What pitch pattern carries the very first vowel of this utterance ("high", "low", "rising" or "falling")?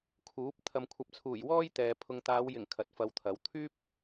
rising